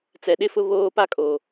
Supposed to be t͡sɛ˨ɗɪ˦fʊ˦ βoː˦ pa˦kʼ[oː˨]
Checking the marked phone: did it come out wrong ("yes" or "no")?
no